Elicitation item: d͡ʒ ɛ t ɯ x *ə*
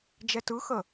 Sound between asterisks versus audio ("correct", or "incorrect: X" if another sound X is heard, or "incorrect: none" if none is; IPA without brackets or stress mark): correct